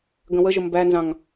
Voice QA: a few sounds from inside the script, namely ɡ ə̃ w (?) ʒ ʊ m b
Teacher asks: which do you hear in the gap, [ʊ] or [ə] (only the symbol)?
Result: ə